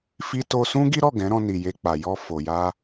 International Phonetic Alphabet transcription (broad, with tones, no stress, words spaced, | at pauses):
fi˧to˧sũ˦ ɡi˦ɾɔ˦˨ ɡɛ̃˨˦ɾɔ̃˧ ni˨ je˧k͡pa˨ jɔ˧ fo˨ ja˧